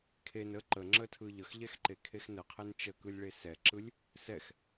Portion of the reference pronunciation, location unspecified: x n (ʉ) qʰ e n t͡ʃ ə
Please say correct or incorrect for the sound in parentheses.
incorrect